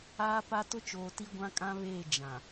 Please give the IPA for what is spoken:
aː˦ p a˦ t ʊ˦ t͡ʃ oː˨ t i˦ ɡʷ ã˦ kʼ ã˦ β eː˦˨ d͡ʒ ã˨

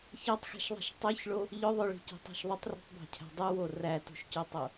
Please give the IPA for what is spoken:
ç ɑ tˤ x æ̤ ʃ ðˤ i̤ ʃ tˤ ø ç ɭ o | ʎ ʏ ðˤ ʏ ɭ i̤ c i̤ tˤ ɑ̤ ʃ ðˤ ʏ tˤ r i̤ tˤ b ɑ̤ cʰ æ̤ dˤ u w o r æ t ṳ ʃ c ø tˤ o

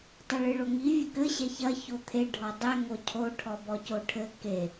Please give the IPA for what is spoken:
tˤ ɨ ɭ ɨ ɭ o ŋ i vʲ ɘ k ɘ ɕ ɛ ç ɐ ç o t̪ʰ e ɖʱ ɔ dˤ ɛ ŋ o cʰ o ʈʰ ɔ b ɔ c o ʈʰ ɘ k e

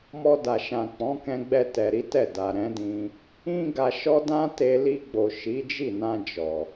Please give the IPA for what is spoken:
m ɔ˧ d a˨ ʃ ã˨ k͡p ɔ̃˨˦ k ɛ̃˧ ɡ͡b ɛ˧ t ɛ˨ ɾ i˨˦ t ɛ˦˨ d a˨ ɾ ɛ̃˨˦ d ĩ˧ | ĩ˦ ɡ a˧ ʃ ɔ˦ d ã˦ t e˧ l i˧ ɡ͡b o˨ ʃ i˨˦ d͡ʒ i˦˨ n ã˧ d͡ʒ ɔ˨

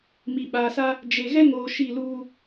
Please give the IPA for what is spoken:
m i˨ ɓ aː˨ s a˦ | d͡ʒ e˨ ɣ ɛ˦ ŋ oː˨ ʃ i˦˨ l uː˦

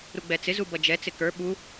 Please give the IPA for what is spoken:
ɾ u ɡ͡b ɛ t͡s ɪ z u b ʌ d͡ʒ ɛ t͡s ɪ k ə˞ ɓ u

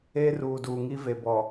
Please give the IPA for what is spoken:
eː˦ r uː˨ d uː˨ ŋ i˦ v e˨ b ɔ˨

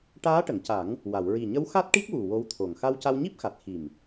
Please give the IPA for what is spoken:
ʈ aː˧˥ ʈ ə˨˩˨ ŋ c a˨˩˦ ŋ | w a˨˩˨ w ɹ i˨˩ ɲ ə˧˥ w x a˦˥ t̚ ʈ i˦˥ k̚ w u˨˩ w o˧˥ w t̪ʰ o˨˩ ŋ x a˧ w c a˧ w ɲ i˦˥ p̚ x a˨˩ t̚ x i˨˩ m

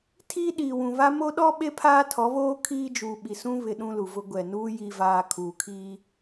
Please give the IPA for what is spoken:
tʰ iː˦ ɗ iː˨ w ũ˨ β a˦ m o˦ ɗ ɔ˦ ɓ e˦ pʰ aː˦ tʰ ɔ˨˦ β oː˦ kʰ iː˦ d͡ʒ uː˨ ɓ i˨ s ũ˦ β ɪ˨ ɗ ũ˦ l u˨ v ʊ˦ ɡʷ ɛ˨ n uː˦ j i˨ v aː˨ kʰ uː˨ kʰ iː˦

